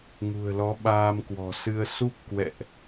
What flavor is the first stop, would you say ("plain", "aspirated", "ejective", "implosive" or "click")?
implosive